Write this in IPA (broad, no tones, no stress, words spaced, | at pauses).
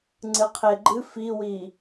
ŋ͡ǀɨqʰeɡ͡ǃɨ fiwi